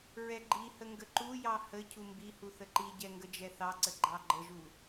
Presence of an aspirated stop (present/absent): present